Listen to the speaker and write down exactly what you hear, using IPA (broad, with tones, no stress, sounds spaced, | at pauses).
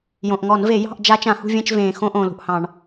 j õ˩ ʔ ŋ ɔ˧˩˧ n v e˧˩˧ j ɑ̤˥˧ ʔ d͡ʒ a˦˥ t͡ʃ ã˧˩˧ h ṳ˥˧ vʲ ẽ˥˧ t͡ʃ v ẽː˩ x õ˧ ʔ õ˩ l ṳ˩ ʔ h ɑ̃˧˩˧ ɳ